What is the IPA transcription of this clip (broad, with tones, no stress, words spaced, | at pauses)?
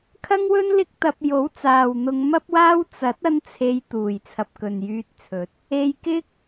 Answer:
kʰɐ˥ŋwɵ˥n lɪ˥k̚ t̪ɐ˧p̚ jo˨˥wt͡saː˨w n̪ʊ˧ŋ mɐ˥p̚waː˥w t͡sɐ˨˥t̚ ɐ˥nt͡sʰe˧j t̪uː˨˩j t͡sʰɐ˨p̚kɵ˨njyː˧t̚t͡sʰɵ˨˥t̚ | e˧jkɪ˥k̚